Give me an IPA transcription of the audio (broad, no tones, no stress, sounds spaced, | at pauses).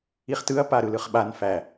i χ t ɯ ɐ̯ p a ɾ ɯ l ɯ χ ɓ a n f æ